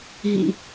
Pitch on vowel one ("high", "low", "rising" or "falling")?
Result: low